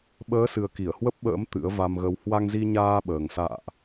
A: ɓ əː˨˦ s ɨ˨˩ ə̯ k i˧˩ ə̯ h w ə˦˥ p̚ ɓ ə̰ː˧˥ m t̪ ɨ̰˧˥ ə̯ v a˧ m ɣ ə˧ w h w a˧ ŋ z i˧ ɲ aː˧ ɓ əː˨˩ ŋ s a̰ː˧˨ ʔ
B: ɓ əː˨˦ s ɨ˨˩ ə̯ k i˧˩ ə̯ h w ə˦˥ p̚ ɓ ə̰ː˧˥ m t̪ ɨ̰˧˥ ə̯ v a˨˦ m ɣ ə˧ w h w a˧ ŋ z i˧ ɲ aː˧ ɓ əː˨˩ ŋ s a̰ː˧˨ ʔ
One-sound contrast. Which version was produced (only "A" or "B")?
A